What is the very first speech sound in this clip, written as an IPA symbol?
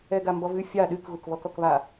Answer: ɛ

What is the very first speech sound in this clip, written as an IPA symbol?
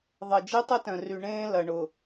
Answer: ðˤ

